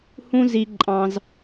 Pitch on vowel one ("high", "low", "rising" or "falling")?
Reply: high